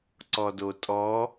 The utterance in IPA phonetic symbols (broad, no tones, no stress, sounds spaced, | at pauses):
ǀ ɔ d o tʼ ɔ